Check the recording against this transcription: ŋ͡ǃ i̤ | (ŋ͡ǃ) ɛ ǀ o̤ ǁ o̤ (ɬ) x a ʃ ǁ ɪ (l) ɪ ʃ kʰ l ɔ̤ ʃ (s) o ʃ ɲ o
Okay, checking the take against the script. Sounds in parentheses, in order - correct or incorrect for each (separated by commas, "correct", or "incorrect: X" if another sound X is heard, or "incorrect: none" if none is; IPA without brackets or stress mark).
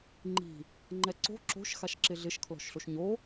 correct, incorrect: ʃ, incorrect: ɮ, incorrect: ɬ